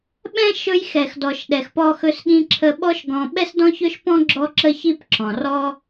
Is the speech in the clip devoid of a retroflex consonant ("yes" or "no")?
yes